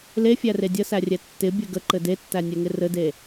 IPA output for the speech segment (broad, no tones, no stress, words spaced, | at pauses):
lefʲære dʲəsærʲɛ tːɪbʲɘ ɡəǃɘ detːænʲɛŋɪ rɘde